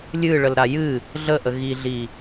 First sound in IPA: lʲ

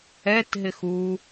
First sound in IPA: ɛ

